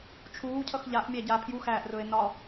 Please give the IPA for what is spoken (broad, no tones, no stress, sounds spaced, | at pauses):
t͡ʃʰ uː cʰ ʌ x ʎ a ʔ mʲ æ ɟ a pʰ j u x æː ʔ r ɵː e̯ n ɒ